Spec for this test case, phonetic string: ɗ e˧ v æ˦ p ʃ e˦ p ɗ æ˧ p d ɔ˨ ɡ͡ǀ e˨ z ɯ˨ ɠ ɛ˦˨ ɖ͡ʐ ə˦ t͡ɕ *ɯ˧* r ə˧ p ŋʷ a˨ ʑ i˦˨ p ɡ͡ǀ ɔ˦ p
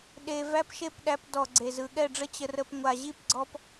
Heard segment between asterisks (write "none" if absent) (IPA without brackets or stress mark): ə˧